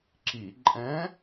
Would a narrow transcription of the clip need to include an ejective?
yes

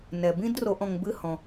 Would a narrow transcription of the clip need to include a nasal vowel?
yes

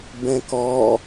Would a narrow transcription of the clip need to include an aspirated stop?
no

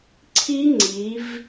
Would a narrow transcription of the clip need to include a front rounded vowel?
no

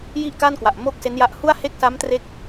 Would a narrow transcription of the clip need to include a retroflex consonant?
no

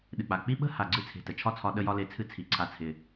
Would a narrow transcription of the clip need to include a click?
yes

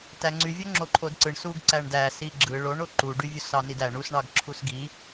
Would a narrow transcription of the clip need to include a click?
yes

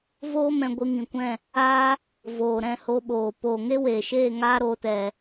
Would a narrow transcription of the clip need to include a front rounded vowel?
no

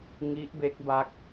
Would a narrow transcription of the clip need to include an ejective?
no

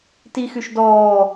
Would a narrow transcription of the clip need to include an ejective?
no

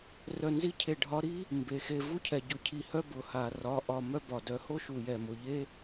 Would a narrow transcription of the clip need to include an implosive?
no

